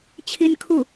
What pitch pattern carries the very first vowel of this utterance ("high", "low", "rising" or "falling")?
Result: high